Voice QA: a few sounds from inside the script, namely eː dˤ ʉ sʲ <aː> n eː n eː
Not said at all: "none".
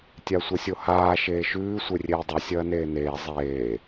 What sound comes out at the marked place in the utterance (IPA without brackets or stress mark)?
ɐː